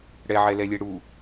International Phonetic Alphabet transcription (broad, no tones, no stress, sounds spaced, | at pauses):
ɽ ɛ ʕ ɛ l ɛ lʲ e ɽ u